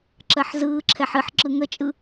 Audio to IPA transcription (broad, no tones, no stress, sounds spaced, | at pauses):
ǁ ɜ ħ z ɯː ǁʰ ɛ ħ ɨ ħ ǁ ɯ ŋ ə t͡ʃʼ ɯ